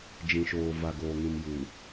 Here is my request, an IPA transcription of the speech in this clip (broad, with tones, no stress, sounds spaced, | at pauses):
d͡ʒ ĩ˨ ʃ oː˨ v a˨ ɡ oː˨ ŋ ĩ˨ m j u˨